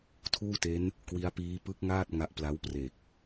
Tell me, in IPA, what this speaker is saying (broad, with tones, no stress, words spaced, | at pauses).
tʰuː˥˩te˦˥n | kwi˦˥a̯piː˦˥ pɯ˦˥k̚ŋaː˥˩t̚ ŋa˦˥ʔ pla˦˥wpre˨˩k̚